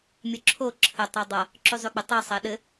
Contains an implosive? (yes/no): yes